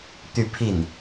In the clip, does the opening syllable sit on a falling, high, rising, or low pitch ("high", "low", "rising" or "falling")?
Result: falling